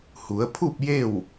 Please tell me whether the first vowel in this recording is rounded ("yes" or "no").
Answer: yes